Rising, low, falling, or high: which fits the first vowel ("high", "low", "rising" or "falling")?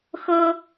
high